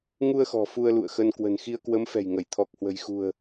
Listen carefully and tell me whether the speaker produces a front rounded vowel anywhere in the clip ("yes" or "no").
no